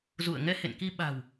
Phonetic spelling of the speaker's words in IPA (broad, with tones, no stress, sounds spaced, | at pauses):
z ṵ˧˨ ə̯ ŋ ɛ˧ h ḛ˧˨ n k i˧ ɓ a̤˨˩ w